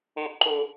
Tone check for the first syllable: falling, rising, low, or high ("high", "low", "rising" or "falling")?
high